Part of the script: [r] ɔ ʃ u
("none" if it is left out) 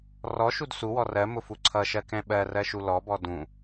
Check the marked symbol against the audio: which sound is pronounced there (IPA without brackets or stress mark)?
r